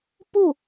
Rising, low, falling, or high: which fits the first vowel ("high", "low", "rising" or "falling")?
falling